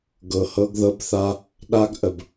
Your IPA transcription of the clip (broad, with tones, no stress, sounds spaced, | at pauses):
ɡ ɤ˨ h ɤ˧ ɡ ð ɤ˧ b θ a˧ | ɗ a˦ ɡ ʔ ə˨ b